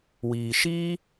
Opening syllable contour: low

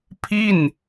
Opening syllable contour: falling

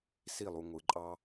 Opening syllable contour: falling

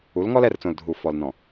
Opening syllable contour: rising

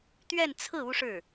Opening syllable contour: falling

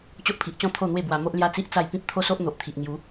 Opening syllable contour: high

